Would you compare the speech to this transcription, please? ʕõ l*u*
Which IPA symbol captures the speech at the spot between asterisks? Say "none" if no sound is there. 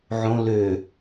ø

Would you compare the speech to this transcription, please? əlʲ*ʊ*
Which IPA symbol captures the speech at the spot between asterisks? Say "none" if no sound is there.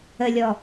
ɔ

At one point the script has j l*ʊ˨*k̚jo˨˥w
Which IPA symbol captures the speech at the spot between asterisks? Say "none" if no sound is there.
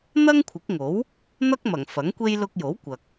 ʊ˧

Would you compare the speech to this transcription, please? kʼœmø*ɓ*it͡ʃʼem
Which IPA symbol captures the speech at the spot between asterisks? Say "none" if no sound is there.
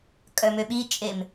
ɓ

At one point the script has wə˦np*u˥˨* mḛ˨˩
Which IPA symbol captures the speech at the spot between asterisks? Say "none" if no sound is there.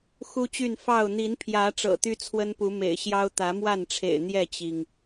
u˨˦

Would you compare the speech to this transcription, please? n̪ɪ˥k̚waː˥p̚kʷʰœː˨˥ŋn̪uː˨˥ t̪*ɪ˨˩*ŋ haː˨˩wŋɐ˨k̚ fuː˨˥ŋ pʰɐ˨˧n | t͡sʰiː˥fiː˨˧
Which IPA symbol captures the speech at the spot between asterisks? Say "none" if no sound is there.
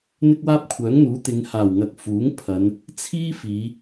ɪ˨˧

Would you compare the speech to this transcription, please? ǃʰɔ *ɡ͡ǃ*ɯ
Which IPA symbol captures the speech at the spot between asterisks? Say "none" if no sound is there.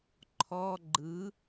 ɡ͡ǃ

